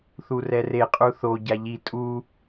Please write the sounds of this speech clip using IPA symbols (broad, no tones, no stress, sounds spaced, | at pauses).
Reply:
θ u r ɛ r e qʼ u θ o ɟ a ʎ i tʼ u